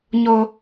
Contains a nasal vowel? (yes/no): no